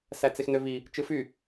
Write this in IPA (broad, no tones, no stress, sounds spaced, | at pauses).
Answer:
s æ t͡s e x n ø v i | t͡ʃ ɯ f y